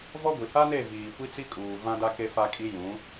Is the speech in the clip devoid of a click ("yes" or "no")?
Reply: yes